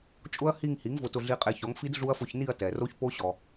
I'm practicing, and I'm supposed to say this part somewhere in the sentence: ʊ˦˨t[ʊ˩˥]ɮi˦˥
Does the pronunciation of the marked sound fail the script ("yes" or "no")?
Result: yes